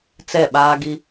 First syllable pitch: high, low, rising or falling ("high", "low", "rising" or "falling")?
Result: falling